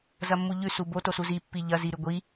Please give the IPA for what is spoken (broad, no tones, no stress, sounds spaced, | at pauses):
z ɐ mː u ʎ ʉ s u b o t o s u z i pː i ʎ ɐ z i ɾ ʉ ɡʷ i